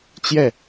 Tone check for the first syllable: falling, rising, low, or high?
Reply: falling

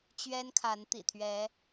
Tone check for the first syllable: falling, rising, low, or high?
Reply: high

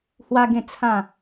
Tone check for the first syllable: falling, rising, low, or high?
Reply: high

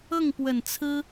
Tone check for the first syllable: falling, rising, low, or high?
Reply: falling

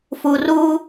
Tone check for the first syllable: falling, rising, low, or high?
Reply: low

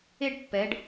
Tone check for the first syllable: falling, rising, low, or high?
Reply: high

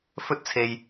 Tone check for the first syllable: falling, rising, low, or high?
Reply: high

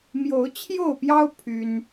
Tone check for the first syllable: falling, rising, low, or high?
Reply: rising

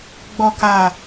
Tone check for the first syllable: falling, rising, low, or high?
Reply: low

